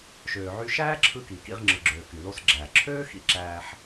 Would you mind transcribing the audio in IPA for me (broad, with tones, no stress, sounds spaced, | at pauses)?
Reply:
ʃ øː˩ ʕ y˧ ʃ æː˥ ǁʰ ɯ˧ k i˩ k ḭ˧ ʁ ŋ͡ǁ ɯ˩ ɡ͡ǁ øː˩ k y˩ l o˧ s ɡ͡ǁ æː˩ ǁʰ øː˥ x ḭ˧ ǁ æː˧ ħ